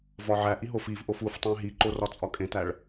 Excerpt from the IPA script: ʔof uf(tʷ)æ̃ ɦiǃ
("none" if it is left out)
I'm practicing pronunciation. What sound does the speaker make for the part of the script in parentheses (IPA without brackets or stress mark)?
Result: tˤ